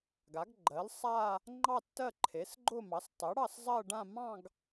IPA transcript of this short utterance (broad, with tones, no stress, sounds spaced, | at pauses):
ɡ a˩˥ ɡ ɡ͡ǃ ɜ˩˥ l sˤ a˥˧ | ŋ͡ǃ ɑ˥˧ tː ɜ˥˧ ǃʰ e˩˥ s ɡ͡ǃ ʊ˥˧ m ɑ˩˥ s tˤ ɛ˩˥ ɽ ɑ˥˧ s zˤ ɜ˥˧ ɖ ã˥˧ m ɑ̃˥˧ ɡ